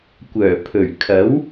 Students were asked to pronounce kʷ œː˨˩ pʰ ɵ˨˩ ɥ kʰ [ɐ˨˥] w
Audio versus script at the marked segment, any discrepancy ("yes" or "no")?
no